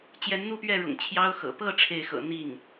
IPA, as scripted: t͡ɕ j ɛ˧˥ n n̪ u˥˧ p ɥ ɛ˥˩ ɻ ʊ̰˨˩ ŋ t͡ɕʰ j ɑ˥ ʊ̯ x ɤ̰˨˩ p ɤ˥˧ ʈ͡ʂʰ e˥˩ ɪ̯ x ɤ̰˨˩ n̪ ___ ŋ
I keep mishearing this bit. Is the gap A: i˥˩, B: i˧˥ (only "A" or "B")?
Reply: A